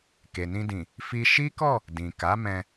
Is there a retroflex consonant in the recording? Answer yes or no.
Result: no